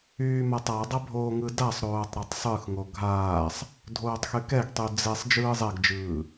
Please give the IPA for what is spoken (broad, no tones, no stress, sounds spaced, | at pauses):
yː m a tˤ a dˤ ɐ bʱ oː ŋ ɯ d a sˤ ɾ oː tˤ ɾ ɐ tˤ sˤ ɯ x ŋ o ɡʱ aː sˤ | dʱ oː tˤ x y k ɛ ɡ tˤ y d͡z ɛ sˤ d͡ʒ ɯː zˤ ɛ ɡ d͡ʒ ɯː